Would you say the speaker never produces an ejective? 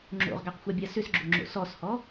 yes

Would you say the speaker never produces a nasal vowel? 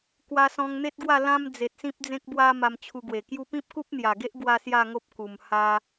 no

